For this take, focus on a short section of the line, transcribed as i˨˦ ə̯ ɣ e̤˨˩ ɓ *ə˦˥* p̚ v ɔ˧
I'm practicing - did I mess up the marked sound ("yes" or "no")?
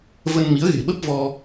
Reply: no